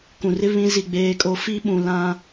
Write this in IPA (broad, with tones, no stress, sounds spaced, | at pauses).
k ũ˨ r ɪ˦ β ĩ˦ z i˦˨ ɡ͡b eː˦ kʼ o˦ f i˦ ɓ ũ˨ l ã˦